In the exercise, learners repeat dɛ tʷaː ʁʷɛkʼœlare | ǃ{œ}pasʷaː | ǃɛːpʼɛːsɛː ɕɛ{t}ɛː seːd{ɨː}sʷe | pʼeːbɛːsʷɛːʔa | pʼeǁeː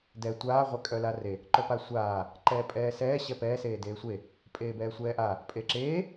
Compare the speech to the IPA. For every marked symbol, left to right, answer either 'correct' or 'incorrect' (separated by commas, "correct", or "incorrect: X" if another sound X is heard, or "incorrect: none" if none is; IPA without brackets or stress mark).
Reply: correct, incorrect: p, incorrect: eː